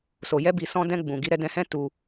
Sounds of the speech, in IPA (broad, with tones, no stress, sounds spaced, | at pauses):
s o˨ j ɛ˧ b i˨ s ɔ̃˧ d ɛ̃˧ ɡ͡b ũ˨ ɡ i˧ ɾ ɛ˧ d ɛ̃˧ h ɛ̃˦ t u˦